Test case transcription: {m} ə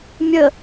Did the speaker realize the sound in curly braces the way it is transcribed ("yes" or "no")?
no